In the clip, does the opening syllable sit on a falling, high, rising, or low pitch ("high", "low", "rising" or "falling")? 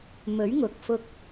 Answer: rising